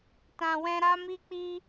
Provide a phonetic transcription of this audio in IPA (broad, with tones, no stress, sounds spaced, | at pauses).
t ã˨ w ɛ̃˧ ɾ a˧ m i˧ k͡p i˧